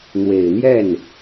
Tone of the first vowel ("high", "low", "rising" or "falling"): low